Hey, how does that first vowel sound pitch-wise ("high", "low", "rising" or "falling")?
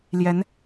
rising